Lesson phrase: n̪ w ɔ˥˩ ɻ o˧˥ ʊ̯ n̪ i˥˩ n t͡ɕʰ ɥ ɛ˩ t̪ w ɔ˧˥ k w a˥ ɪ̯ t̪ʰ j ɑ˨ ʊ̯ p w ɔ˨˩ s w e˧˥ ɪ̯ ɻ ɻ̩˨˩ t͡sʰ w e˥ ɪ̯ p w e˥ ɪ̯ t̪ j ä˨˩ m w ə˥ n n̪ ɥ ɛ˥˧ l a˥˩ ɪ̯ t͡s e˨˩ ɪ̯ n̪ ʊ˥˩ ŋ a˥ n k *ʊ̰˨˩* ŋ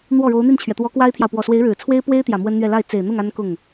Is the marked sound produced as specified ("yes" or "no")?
no